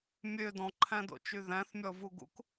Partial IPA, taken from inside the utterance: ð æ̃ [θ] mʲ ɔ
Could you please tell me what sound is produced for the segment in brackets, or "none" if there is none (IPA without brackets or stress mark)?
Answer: θ